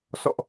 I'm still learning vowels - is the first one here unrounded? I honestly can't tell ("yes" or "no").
no